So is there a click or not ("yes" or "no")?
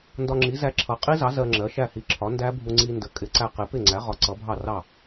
yes